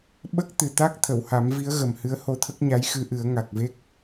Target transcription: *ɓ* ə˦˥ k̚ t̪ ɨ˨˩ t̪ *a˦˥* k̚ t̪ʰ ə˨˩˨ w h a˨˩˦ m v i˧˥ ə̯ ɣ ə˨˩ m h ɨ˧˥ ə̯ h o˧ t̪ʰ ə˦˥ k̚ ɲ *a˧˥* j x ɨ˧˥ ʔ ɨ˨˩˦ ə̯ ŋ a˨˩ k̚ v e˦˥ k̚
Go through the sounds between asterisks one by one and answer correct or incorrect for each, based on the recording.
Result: correct, correct, correct

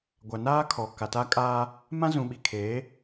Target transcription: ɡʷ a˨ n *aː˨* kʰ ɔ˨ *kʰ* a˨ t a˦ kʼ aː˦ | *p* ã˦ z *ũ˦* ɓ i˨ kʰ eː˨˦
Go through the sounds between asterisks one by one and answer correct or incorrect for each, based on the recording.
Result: incorrect, incorrect, incorrect, incorrect

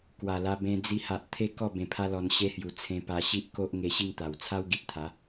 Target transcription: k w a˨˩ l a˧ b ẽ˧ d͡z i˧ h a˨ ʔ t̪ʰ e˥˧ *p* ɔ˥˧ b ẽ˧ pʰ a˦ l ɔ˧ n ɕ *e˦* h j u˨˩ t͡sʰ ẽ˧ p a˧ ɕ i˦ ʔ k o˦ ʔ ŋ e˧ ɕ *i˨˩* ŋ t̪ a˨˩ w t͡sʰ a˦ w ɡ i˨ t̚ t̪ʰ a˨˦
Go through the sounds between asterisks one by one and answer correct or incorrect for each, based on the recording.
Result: incorrect, incorrect, incorrect

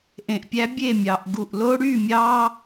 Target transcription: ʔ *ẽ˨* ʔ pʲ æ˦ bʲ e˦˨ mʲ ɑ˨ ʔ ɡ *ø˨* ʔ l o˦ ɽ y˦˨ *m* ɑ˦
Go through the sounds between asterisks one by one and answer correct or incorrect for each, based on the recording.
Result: correct, incorrect, incorrect

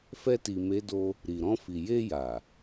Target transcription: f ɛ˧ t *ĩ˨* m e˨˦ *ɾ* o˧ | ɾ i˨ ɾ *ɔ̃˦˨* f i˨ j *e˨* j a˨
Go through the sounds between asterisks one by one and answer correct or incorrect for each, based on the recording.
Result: incorrect, incorrect, incorrect, incorrect

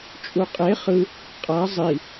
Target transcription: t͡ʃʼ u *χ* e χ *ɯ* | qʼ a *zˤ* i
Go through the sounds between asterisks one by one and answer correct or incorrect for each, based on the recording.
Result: incorrect, correct, correct

